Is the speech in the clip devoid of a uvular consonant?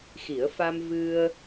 yes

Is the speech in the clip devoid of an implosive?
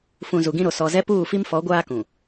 yes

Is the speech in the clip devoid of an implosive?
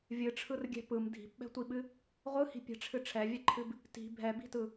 no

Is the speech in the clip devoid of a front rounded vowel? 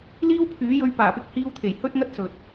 no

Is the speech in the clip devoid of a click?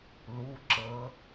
no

